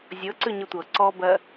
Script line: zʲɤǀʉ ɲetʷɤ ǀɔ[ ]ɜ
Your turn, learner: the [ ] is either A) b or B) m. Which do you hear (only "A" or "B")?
A